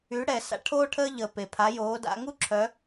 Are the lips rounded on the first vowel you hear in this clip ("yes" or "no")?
yes